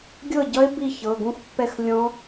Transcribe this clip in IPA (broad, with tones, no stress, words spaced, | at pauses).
ɡʲɤ˥˩ɟʌ˦˥e̯ bi˥˩çɤ˩˧˩ɡũ˦˥xpːɛ˥˩x lʲɔ̃˦˥